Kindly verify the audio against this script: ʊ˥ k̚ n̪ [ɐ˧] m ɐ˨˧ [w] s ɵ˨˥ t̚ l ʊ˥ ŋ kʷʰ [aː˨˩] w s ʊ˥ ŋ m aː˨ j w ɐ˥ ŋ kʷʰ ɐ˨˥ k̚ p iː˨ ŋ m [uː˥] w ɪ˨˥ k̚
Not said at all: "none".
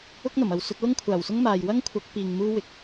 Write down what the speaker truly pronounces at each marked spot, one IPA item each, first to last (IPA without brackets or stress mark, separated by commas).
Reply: ɐ˨˩, w, aː˨˩, uː˥